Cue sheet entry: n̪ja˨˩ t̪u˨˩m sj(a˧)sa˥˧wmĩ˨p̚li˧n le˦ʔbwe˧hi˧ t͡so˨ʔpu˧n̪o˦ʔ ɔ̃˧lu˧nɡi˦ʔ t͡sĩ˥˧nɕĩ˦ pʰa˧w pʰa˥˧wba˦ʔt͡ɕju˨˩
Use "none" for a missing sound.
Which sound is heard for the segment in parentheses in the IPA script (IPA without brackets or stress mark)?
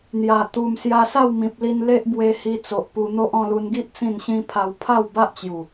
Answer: a˧